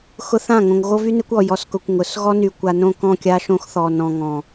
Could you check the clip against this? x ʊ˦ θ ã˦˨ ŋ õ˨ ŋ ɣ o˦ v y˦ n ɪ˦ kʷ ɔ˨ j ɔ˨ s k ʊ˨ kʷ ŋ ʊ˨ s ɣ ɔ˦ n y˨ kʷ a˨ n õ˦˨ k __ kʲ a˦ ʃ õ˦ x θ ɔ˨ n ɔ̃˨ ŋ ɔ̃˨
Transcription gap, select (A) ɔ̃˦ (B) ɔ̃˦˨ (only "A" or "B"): B